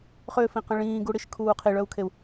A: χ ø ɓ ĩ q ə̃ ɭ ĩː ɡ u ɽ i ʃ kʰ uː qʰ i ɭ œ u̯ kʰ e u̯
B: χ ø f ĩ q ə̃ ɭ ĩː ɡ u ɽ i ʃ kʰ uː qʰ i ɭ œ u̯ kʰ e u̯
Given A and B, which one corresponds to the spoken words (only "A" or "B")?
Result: B